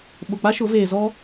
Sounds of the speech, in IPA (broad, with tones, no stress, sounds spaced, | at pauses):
ɓ ʊ˨ k͡p a˦ ʃ ʊ˨˦ v eː˨ z ɔ˦